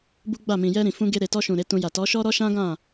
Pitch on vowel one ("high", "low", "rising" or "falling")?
high